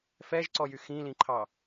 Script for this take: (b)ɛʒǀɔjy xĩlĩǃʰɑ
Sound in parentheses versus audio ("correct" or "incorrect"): incorrect